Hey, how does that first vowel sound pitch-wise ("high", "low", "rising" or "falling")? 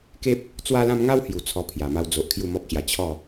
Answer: high